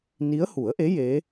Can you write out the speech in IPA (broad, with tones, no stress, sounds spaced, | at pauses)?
n i˧˥ ə̯ h u˨˩˦ ə̯ ʔ e˧˥ j e˧˥